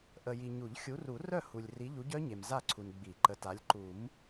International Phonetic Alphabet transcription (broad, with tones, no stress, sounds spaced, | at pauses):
ʔ ə˨ j i˨ ɲ u˨˩˦ ʎ xʲ u˨˦ r u˨˩˦ r œ˥˨ h u˨ lʲ r i˨˦ ʎ u˨˦ ɟ œ˦˥ ɲ e˨ m z a˥˨ ǀʰ u˨ n ɡ͡b i˨˩˦ ǃ ə˨˦ t a˨˦ lʲ ǃ u˨˩˦ m